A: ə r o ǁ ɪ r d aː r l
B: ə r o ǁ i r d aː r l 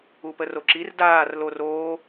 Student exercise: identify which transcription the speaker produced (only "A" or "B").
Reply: B